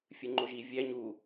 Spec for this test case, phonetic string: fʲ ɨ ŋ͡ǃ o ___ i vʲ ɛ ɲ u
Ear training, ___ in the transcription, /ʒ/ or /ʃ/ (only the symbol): ʒ